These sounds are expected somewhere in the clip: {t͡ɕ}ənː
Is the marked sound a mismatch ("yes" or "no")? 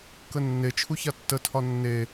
yes